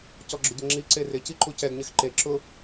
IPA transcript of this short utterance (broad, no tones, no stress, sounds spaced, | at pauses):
c ɔ ɡ͡ǁ ʊ ɟ ɪ ŋ͡ǁ i ǀ e r ɪ c i ǃ u c ɛ ɡ ɲ ɪ x ǃ e ǁ ʊ